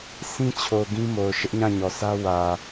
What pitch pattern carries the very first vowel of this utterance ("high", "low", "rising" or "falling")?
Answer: high